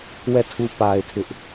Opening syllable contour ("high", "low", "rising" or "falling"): falling